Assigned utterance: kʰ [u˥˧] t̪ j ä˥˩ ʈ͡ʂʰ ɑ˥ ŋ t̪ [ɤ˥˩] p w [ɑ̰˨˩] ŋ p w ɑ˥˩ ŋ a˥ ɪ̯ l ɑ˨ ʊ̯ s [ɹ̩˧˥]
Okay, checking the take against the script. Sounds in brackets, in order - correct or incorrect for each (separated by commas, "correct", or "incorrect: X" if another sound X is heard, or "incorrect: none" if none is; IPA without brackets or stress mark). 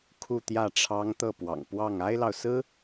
correct, correct, correct, incorrect: ɹ̩˥